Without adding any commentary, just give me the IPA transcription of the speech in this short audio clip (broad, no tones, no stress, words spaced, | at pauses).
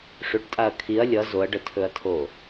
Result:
ʂʏʈtʼaɐ̯ kʰiɐ̯ lʲʌ zoɐ̯ɖətʰɵɐ̯tʰo